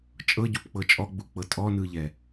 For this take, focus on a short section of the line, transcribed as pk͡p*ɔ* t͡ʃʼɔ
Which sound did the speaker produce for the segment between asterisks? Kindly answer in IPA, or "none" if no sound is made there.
ɤ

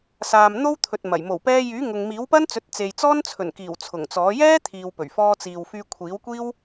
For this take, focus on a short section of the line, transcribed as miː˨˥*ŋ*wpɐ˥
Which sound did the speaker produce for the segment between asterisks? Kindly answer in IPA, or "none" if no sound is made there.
none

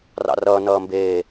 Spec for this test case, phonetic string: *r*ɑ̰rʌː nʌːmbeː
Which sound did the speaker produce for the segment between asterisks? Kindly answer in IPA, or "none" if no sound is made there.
r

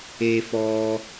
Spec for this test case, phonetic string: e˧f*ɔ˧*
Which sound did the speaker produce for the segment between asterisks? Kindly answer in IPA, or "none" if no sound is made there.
ɔ˧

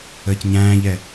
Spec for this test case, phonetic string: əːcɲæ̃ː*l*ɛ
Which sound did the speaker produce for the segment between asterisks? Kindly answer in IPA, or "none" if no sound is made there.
ʎ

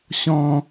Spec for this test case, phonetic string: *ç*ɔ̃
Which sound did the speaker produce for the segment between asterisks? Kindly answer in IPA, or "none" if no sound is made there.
ɕ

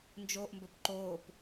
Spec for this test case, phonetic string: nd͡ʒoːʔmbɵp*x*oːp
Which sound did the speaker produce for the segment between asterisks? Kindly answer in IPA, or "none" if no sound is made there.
ǃ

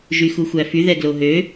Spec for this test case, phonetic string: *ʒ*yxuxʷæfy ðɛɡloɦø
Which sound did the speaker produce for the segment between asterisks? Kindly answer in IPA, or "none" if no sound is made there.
ʒ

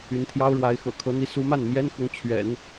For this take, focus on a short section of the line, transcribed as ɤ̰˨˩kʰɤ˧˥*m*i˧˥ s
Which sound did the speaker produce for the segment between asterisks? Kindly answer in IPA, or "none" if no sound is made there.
n̪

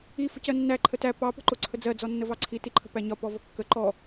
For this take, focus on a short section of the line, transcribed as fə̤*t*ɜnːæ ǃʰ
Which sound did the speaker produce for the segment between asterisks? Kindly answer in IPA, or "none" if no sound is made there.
c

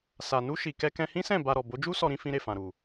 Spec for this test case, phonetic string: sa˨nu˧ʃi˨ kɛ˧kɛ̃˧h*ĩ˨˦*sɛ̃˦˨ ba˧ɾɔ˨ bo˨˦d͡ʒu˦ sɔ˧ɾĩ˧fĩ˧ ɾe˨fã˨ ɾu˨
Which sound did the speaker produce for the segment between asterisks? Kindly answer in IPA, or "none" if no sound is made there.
ĩ˦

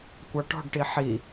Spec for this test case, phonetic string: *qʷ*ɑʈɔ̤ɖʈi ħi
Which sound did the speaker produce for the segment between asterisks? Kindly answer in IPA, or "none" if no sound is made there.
kʷ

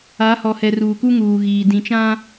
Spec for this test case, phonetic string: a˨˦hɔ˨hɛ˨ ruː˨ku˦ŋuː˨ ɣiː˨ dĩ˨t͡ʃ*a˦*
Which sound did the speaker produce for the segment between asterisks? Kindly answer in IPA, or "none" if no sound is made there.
ã˦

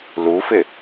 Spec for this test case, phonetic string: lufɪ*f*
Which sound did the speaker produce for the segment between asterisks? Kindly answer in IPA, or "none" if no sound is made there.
none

